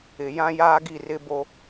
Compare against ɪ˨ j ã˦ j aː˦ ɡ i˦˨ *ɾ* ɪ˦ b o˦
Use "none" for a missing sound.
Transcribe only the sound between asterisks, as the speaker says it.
r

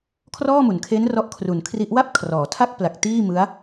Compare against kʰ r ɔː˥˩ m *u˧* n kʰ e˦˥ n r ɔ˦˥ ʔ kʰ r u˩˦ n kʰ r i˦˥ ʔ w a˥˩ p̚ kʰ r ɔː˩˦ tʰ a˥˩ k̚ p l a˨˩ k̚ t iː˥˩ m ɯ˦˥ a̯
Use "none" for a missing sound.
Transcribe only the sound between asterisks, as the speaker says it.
u˩˦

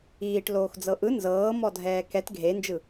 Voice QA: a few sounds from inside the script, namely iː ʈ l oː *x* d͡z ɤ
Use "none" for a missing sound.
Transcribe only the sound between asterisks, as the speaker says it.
x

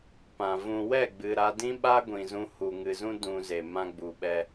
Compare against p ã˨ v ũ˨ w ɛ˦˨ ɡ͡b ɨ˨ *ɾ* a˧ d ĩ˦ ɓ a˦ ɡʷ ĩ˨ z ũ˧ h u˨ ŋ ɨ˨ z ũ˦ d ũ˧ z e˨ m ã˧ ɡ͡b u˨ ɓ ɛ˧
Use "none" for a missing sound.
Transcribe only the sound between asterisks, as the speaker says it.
ɾ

